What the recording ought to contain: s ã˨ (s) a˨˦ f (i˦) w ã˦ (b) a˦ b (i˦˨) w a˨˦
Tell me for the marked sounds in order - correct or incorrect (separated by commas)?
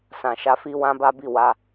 incorrect, correct, correct, correct